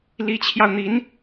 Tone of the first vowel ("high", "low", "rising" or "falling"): rising